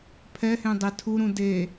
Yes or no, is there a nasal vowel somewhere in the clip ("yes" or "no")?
yes